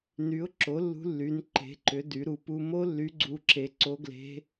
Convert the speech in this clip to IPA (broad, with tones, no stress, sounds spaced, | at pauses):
n y˨˥ ʊ̯ ǁ o˨˥ lː ṳ˦˥ lː y˨˥ n ǃ e̤˨˥ ǃ ʏ˨˥ d y˨˥ ɾ u˨˥ p u˦˥ m o˦˥ lː y˨˥ ɡ͡ǀ u˨˥ ǁ e˨˥ ǀ o˦˥ ɡ l e̤˦˥